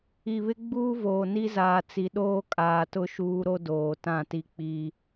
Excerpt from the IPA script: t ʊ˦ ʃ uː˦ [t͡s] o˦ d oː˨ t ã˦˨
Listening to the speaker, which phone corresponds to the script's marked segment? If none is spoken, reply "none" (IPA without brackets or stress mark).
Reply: ɾ